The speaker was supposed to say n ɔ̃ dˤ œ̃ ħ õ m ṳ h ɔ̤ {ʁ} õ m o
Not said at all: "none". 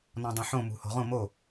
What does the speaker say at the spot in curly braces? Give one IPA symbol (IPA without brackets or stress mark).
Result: ʁ